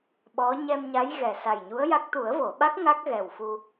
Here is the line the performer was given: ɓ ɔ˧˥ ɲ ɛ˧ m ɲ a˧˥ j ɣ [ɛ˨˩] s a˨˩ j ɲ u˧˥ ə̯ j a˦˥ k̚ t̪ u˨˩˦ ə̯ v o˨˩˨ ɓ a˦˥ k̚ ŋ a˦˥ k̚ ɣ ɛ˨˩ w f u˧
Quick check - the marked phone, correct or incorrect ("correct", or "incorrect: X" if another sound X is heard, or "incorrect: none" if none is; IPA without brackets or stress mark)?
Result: correct